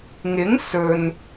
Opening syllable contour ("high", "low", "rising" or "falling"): rising